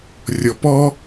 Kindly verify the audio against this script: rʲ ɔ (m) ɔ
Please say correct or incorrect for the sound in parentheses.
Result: incorrect: p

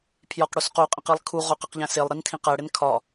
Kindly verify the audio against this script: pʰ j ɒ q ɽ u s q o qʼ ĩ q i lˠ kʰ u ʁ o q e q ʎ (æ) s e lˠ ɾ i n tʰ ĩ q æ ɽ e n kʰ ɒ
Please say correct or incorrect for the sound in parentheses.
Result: incorrect: æ̃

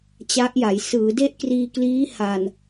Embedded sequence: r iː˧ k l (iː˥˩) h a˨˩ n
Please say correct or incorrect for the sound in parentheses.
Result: incorrect: iː˦˥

